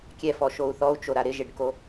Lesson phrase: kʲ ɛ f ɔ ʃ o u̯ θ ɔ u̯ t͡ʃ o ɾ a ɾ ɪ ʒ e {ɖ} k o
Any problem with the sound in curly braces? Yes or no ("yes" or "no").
no